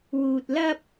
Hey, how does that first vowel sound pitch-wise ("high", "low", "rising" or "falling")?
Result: low